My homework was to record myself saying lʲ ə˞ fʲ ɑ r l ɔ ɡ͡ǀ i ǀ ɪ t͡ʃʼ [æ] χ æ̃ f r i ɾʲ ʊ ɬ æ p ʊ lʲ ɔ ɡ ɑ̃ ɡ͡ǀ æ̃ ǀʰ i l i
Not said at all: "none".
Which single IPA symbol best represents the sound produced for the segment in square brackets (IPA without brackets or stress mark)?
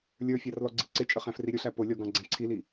ə